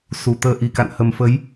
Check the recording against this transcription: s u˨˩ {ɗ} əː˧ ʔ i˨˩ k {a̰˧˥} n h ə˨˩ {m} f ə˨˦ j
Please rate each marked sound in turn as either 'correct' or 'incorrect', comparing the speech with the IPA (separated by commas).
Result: incorrect, incorrect, correct